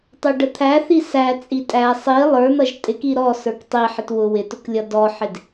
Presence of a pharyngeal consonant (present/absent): present